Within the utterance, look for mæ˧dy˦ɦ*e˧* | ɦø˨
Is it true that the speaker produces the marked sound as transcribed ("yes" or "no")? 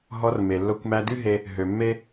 yes